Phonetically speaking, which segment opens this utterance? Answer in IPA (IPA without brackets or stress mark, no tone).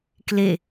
k